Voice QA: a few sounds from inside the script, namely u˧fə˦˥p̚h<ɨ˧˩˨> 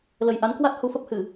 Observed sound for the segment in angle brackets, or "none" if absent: ɨ˧˩˨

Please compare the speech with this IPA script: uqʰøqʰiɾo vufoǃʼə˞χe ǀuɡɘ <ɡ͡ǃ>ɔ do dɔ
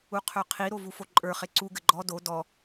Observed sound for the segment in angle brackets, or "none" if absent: ɡ͡ǃ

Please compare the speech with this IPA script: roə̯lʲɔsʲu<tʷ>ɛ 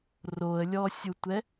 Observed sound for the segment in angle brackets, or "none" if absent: tʷ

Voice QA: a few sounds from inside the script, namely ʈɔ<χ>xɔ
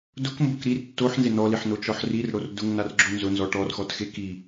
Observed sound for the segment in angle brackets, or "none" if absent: r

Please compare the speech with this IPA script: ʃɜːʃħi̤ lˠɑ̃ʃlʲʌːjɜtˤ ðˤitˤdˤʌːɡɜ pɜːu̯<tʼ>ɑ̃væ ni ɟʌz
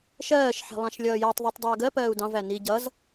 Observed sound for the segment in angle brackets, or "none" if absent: d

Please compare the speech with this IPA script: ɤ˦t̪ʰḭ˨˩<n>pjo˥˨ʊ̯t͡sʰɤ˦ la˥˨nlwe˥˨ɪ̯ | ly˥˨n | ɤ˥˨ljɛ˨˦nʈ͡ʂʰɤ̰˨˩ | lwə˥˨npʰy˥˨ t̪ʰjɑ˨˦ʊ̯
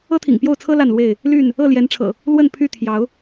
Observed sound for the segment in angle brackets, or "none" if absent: ŋ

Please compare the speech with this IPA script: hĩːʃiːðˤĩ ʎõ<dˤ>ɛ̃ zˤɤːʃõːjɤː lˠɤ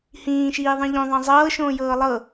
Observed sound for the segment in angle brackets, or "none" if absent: ðˤ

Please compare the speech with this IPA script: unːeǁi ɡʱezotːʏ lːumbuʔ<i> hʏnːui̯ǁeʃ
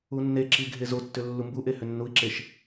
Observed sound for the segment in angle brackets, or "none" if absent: e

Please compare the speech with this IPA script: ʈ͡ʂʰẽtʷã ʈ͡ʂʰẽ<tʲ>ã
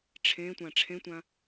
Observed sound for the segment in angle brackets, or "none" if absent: tʷ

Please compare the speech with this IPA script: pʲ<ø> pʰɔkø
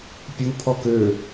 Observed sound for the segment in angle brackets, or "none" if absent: u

